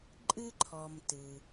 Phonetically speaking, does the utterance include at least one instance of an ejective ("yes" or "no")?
yes